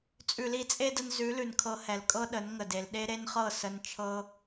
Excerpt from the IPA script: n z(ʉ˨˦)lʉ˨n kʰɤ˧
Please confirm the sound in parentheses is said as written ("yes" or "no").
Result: yes